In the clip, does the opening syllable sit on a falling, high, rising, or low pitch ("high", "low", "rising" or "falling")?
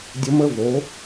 rising